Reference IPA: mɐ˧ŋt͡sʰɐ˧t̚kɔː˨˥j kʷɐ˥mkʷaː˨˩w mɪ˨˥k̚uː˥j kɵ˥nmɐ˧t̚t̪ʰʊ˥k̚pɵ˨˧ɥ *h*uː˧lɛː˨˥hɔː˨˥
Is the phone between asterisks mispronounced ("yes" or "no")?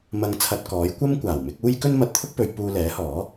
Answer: yes